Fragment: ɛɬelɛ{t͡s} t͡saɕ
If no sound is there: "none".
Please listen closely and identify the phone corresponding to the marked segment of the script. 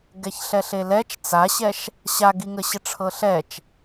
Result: t͡ʃ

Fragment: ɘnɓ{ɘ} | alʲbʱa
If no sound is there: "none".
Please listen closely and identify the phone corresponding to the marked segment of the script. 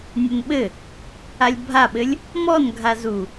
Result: ɘ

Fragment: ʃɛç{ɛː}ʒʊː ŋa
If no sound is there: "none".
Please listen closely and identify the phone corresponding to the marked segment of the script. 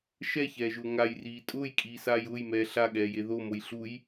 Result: ɛː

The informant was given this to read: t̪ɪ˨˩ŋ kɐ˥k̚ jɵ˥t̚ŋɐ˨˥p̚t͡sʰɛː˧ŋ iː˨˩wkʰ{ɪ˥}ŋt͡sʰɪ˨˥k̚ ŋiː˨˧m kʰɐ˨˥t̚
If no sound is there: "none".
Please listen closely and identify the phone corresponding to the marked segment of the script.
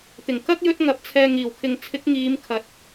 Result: ɪ˨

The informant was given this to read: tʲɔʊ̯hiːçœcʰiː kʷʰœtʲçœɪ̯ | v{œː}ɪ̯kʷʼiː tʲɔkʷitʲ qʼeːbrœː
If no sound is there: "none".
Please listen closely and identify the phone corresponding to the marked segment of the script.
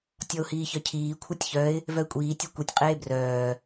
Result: œ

